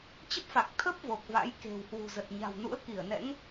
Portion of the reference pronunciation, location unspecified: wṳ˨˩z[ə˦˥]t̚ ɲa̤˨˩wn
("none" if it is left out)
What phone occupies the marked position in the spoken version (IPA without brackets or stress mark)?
ə˨˩